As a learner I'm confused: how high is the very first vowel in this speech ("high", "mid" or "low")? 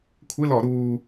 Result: high